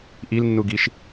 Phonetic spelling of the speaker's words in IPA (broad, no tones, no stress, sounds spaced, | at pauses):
ʔ i l nː u ɡ i ʃ